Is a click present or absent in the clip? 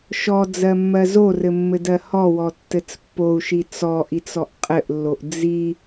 absent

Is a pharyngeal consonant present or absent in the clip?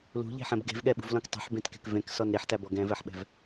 present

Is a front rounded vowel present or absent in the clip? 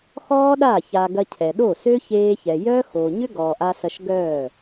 present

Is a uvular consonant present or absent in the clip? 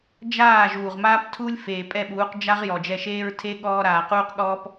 present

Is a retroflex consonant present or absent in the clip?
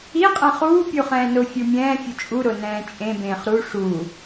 present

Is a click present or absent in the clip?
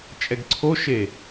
present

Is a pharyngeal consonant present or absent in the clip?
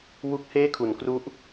absent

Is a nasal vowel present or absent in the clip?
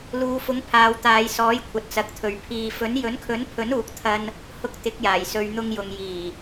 absent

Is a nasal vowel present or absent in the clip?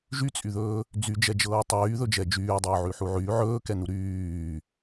absent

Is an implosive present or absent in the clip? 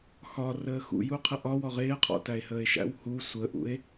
absent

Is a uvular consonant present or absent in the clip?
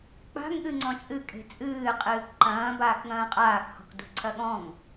present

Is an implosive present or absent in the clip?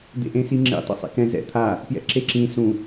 absent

